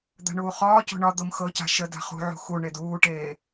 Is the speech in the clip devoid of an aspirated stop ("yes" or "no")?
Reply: yes